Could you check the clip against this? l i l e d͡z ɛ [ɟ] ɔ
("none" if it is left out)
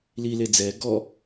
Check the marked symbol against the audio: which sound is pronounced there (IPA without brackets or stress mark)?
ɡ